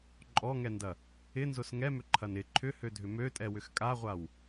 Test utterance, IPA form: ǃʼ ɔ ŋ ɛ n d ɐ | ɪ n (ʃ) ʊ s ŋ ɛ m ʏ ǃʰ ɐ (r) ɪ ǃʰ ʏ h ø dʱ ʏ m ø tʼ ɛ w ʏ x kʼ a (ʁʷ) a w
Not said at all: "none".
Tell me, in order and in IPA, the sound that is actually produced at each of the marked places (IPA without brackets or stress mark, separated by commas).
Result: z, n, ʁʷ